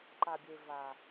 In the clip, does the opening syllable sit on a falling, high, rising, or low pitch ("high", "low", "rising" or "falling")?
low